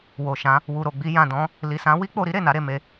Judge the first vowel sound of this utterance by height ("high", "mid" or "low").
mid